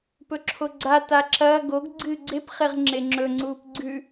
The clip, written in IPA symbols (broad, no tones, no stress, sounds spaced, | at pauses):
p ɵ ǁʰ o ɡ͡ǀ a t a ǁ ɐː ɡ o ɡ ɡ͡ǀ ɨː ɡ͡ǀ e p χ e ʁ ŋ͡ǁ e ŋ͡ǁ ɵ ŋ͡ǀ uː p ɡ͡ǀ ʉ